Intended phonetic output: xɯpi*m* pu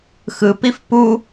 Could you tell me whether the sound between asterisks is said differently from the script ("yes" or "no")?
yes